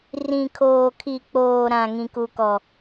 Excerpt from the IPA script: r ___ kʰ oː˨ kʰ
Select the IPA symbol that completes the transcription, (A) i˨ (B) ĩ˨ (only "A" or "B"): B